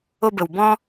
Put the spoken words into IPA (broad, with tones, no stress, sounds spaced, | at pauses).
o˧ b ə˨ w b ɔ̃˦